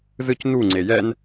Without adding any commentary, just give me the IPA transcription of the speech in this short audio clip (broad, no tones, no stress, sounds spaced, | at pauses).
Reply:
z ɯ c n u ŋ͡ǀ e j ɛ n